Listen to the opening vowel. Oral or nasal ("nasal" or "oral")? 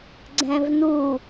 nasal